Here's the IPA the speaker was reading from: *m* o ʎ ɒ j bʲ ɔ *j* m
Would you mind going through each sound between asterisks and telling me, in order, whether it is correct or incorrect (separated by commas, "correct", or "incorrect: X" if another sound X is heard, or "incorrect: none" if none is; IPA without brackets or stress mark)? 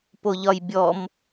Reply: incorrect: p, incorrect: none